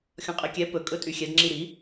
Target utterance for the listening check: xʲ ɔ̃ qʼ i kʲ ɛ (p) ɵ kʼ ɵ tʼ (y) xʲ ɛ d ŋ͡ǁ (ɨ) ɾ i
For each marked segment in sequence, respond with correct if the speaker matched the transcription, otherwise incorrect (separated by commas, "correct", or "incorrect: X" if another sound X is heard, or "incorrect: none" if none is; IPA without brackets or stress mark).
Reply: correct, correct, incorrect: i